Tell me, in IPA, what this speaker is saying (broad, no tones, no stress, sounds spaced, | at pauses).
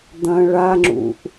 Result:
d̪ ɐ̃ ɭ a ŋ͡ǁ ṵ ʔ